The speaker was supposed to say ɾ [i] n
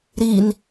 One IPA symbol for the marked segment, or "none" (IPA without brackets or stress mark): i